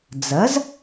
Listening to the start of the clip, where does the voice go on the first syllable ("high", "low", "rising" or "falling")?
rising